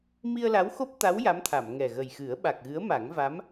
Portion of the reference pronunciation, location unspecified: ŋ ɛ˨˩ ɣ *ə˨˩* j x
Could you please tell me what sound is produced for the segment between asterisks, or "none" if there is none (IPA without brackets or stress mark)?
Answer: ə˨˩